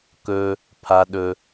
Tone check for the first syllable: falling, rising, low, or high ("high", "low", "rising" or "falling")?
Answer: high